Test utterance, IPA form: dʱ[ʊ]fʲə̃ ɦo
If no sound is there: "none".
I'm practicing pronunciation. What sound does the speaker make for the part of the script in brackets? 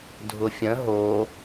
ʊ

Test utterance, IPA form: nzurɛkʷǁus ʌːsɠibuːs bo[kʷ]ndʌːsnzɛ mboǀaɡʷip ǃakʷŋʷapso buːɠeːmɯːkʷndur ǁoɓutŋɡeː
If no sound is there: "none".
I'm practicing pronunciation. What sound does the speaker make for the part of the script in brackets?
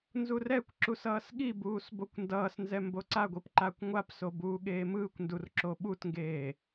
kʷ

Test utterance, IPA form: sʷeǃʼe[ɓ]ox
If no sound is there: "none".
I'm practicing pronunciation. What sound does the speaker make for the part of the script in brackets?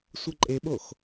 ɓ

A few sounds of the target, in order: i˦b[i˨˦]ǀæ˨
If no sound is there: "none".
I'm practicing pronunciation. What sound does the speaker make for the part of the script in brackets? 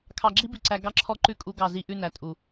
i˨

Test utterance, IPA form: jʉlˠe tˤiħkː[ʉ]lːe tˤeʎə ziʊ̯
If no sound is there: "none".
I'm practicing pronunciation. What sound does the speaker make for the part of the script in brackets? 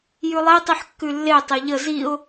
ʉ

